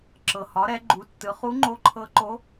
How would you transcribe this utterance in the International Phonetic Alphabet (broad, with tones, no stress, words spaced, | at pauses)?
ǁɤ˩hɒ˩˧ɾɛ˩˧ɡ͡ǃu˩˧ tːɯ˩˧ χu˧˥ŋ͡ǃo˧ǃʰɤ˧˥ǃo˧˥